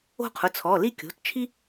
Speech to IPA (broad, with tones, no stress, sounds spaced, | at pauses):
o̤˥˧ qʰ ʊ˩˧˩ t͡sʰ ɔ˩˧˩ l i˥˧ kʲ o̤˩˧˩ t t͡ʃʰ i˥